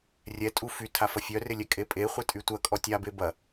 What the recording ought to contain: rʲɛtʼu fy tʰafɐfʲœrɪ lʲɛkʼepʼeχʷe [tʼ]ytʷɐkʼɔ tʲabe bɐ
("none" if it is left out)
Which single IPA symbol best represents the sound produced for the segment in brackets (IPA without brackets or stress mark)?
tʼ